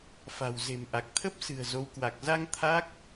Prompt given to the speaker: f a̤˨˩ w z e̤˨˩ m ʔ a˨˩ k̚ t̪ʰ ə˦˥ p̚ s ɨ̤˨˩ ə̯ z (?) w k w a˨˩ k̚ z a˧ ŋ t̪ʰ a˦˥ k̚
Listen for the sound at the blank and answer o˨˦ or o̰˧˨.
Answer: o˨˦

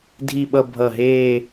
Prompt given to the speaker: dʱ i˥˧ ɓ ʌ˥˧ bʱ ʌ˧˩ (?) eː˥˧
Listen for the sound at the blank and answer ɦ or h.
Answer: ɦ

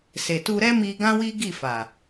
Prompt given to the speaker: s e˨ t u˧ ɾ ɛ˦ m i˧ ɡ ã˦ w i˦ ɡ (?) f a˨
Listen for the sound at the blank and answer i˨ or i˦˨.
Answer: i˦˨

